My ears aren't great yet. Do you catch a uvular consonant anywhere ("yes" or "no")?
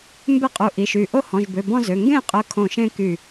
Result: yes